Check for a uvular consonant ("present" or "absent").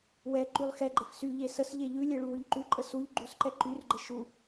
absent